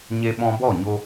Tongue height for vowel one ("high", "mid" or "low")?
mid